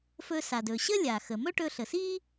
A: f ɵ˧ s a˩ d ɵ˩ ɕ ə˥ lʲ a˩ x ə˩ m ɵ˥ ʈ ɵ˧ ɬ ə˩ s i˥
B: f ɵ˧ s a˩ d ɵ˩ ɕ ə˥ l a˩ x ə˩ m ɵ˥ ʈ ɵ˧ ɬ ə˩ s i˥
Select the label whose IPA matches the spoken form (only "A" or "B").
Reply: A